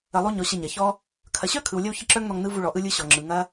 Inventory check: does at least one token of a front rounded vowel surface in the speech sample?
yes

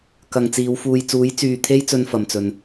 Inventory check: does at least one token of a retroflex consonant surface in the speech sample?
no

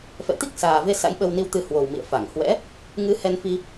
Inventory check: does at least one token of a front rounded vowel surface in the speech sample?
no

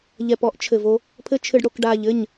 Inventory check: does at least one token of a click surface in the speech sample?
no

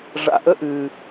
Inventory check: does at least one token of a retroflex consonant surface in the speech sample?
yes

